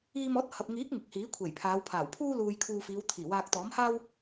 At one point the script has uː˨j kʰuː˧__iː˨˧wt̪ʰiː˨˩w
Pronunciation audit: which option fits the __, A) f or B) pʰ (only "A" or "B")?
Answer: A